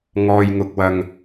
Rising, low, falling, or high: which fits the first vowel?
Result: low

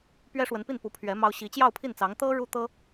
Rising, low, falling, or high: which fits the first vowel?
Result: high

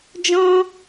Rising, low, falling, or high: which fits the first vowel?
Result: high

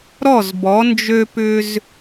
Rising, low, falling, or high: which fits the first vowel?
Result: falling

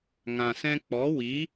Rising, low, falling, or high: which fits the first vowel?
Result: low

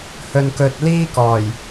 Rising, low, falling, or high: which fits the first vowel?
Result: low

